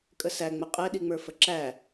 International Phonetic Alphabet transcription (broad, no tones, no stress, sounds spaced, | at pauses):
kʼ ə s æ ŋ͡m ə qʼ ɛ ɗ i ŋ͡m ə˞ f ə ǁ æ